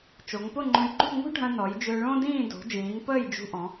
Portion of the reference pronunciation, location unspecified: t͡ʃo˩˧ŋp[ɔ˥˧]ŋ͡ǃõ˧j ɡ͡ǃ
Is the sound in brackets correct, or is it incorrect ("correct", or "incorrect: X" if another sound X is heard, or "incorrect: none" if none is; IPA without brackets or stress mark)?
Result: incorrect: ʊ˥˧